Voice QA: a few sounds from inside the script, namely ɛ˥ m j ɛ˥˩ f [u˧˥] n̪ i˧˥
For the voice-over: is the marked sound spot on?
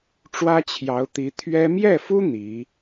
no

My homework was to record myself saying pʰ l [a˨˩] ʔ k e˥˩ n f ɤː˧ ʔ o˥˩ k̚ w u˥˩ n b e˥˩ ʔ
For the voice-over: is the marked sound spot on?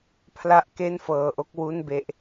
no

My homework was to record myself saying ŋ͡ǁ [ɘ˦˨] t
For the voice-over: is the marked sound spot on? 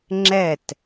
no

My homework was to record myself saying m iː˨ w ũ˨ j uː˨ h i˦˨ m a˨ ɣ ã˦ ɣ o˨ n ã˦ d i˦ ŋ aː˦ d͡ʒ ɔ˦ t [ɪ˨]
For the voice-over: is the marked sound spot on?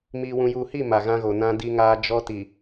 no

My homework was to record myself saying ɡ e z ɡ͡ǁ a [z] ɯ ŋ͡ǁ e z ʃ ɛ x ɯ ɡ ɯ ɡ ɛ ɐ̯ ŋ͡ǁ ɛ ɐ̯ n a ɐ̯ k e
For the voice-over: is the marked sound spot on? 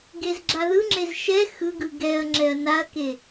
no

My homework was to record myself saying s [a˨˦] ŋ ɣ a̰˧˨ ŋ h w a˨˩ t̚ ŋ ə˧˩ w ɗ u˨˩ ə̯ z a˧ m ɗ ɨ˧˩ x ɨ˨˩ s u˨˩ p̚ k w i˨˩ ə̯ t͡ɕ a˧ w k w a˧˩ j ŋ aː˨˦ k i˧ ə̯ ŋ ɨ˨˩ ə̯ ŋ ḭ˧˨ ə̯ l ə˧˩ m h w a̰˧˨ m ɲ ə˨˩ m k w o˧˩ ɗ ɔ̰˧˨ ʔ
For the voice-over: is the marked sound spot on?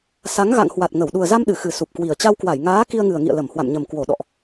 yes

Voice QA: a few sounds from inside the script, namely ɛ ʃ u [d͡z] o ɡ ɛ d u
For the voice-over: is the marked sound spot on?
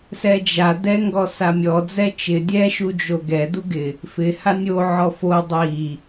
no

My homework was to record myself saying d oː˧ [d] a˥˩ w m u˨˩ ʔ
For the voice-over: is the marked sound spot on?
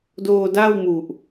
yes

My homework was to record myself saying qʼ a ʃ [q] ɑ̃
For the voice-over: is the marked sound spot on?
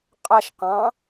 yes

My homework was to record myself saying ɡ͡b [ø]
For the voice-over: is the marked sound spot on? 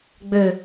yes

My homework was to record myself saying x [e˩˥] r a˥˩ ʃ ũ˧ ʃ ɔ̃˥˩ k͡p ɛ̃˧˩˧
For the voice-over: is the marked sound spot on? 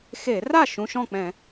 no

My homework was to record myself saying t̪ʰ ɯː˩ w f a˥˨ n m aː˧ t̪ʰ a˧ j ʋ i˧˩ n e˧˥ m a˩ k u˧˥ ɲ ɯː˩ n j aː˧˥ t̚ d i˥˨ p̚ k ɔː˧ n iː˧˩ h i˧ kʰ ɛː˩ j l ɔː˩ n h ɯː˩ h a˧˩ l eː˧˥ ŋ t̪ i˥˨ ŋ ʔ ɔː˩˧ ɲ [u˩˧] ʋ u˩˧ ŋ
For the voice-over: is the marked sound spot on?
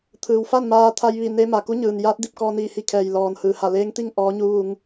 yes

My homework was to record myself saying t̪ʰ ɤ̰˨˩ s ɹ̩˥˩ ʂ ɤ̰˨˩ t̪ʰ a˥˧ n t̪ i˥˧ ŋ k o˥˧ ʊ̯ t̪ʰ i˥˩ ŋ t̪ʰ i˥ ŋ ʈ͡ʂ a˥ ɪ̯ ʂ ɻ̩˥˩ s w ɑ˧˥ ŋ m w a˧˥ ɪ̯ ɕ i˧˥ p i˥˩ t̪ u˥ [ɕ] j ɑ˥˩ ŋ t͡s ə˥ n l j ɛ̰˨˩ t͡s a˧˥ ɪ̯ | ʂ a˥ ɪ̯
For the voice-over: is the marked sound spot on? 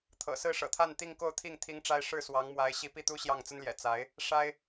yes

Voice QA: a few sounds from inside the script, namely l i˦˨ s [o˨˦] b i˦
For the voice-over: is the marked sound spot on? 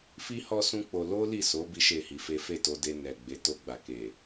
yes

